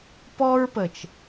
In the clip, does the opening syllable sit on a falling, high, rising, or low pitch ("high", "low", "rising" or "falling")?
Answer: high